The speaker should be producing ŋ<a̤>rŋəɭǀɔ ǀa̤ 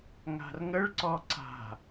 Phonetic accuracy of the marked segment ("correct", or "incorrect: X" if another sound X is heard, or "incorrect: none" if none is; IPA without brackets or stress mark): correct